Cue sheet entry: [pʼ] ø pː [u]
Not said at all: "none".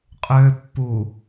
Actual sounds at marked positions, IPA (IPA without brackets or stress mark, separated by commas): qʼ, u